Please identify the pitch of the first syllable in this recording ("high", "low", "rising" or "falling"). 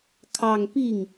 falling